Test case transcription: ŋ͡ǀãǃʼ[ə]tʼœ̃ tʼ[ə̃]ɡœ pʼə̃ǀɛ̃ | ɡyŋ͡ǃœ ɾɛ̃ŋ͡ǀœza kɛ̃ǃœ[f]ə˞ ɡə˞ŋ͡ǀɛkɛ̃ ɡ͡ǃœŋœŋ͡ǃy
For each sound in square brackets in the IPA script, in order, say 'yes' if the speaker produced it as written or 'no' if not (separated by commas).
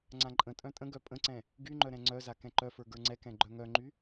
no, yes, yes